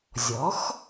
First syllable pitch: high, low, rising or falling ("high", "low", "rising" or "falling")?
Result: rising